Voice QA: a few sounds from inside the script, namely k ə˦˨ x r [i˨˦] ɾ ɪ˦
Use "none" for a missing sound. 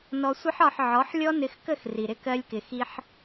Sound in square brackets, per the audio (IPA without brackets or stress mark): i˨